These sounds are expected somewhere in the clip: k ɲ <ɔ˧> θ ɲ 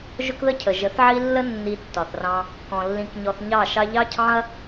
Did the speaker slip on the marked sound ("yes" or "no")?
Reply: no